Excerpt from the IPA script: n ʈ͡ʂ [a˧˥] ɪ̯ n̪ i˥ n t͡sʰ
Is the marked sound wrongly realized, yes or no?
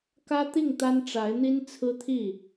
no